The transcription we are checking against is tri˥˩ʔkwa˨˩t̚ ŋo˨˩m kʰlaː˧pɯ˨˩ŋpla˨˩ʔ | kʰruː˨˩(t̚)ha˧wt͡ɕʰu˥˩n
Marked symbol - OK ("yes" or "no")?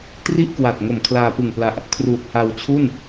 yes